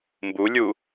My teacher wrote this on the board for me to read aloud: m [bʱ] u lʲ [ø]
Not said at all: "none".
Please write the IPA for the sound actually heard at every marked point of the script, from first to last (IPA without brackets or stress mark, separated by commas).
b, u